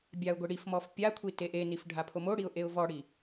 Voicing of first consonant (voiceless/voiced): voiced